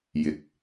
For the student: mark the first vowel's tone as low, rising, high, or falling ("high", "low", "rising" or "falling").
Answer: rising